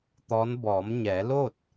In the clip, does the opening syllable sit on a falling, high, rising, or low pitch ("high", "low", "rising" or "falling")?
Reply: rising